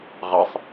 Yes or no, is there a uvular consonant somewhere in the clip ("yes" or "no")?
yes